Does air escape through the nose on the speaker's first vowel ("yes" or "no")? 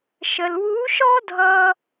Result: no